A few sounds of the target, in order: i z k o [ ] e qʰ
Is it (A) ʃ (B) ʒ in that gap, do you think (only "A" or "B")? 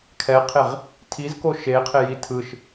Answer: A